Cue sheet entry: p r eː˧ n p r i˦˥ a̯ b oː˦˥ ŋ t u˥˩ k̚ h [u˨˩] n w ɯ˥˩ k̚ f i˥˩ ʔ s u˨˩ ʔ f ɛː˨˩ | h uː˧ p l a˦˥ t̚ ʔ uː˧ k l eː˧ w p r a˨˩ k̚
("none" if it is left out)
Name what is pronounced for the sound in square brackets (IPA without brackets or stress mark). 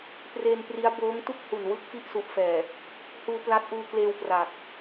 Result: u˨˩